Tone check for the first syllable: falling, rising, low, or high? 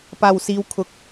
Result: low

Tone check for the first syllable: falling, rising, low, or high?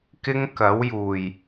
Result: high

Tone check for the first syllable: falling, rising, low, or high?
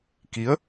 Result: rising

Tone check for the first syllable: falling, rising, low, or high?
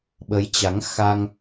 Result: rising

